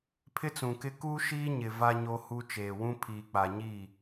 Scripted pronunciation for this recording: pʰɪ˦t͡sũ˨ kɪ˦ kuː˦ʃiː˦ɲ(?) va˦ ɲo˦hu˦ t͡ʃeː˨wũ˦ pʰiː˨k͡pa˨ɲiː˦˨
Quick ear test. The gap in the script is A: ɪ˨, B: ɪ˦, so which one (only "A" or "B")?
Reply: A